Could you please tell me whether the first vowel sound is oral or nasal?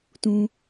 nasal